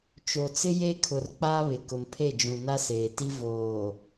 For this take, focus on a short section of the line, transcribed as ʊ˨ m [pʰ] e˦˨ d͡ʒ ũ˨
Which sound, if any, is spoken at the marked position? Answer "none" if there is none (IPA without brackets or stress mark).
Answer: pʰ